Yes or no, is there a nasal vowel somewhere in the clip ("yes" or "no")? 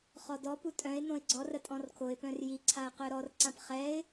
yes